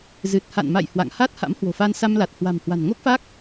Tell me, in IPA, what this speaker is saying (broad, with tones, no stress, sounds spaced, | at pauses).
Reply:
z ɨ˨˩ t̚ h a̰˧˨ n m a̰˧˨ j h w a̰˧˨ ŋ h a˦˥ t̚ h a̰˧˥ m h w o̤˨˩ f a˧ n s a˧ m l a˨˩ t̚ h w a̤˨˩ m h w a̤˨˩ n ŋ o˦˥ k̚ f a˦˥ k̚